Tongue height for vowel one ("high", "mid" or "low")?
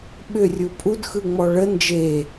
high